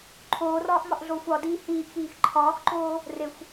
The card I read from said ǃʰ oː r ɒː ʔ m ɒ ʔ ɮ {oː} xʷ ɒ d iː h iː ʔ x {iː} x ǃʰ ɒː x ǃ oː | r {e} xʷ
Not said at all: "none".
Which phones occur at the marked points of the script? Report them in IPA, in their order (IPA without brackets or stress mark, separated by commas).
oː, iː, e